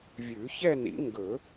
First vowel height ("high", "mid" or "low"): high